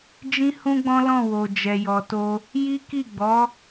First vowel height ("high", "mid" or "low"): high